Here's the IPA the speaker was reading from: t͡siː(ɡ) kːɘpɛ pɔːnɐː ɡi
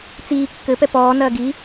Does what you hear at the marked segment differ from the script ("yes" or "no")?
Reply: yes